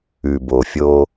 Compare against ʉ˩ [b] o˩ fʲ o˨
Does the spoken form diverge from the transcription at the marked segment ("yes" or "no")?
no